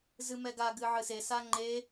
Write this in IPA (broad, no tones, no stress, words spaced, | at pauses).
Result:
zɨmɛɡa ɡɨʕɨse saŋ͡ǃe